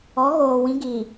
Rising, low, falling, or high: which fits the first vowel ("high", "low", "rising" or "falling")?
rising